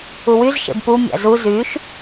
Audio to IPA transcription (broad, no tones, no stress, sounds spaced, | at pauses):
u w y z ʃ ḛ b p u mʲ a̰ z u z y ʃ